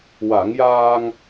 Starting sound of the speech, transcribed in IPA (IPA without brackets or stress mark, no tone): w